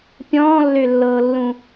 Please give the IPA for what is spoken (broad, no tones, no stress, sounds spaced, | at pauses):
pʲ ɔ̃ː lː ø lː ɤː lː ũ